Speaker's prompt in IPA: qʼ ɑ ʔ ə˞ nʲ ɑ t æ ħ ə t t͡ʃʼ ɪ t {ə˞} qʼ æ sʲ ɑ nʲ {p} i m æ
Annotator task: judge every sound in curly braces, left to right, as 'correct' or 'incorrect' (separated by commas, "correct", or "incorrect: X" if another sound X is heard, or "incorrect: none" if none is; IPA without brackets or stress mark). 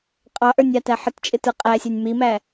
correct, incorrect: m